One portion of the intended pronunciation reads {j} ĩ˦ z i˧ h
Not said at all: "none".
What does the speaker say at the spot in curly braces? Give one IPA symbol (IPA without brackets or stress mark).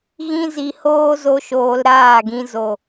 ɣ